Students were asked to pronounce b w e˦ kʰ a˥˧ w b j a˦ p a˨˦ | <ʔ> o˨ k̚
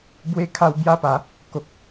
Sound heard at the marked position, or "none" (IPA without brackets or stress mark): k